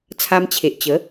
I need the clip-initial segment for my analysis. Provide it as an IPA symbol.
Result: t͡sʰ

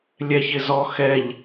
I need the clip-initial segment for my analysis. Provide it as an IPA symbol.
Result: lʲ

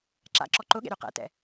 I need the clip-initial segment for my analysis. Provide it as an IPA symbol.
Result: ǁ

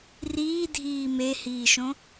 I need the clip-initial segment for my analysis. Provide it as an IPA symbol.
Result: r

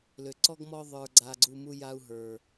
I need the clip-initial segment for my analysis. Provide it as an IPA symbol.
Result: l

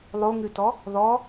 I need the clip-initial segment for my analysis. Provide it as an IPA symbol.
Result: lˠ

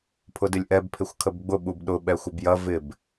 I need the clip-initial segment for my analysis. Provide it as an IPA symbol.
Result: pʰ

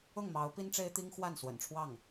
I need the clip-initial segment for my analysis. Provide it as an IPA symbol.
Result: ʊ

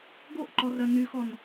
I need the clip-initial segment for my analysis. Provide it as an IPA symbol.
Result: ɡ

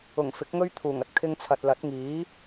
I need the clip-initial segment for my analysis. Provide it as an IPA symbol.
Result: ʊ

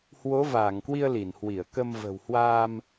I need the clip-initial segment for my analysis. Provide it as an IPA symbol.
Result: h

